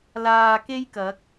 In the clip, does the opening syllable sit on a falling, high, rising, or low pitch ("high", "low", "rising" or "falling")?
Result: low